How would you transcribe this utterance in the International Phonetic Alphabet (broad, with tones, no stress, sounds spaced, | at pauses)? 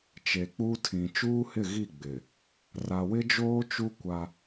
t͡ʃ e˨ k͡p u˦ tʰ ĩ˨ t͡ʃ uː˦ h ɪ˦˨ ɣ i˦˨ ɡ͡b ɪ˨ | r a˨ w ɪ˦ d͡ʒ oː˦ t͡ʃ u˦ kʷ a˦